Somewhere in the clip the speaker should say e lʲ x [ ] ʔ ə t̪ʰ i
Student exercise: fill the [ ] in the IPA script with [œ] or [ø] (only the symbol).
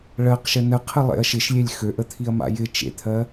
ø